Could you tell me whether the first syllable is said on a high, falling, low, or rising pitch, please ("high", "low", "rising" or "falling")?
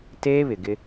high